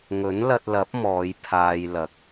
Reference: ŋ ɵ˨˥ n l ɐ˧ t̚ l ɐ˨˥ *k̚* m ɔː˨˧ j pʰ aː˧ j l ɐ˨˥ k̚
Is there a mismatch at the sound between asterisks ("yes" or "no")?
yes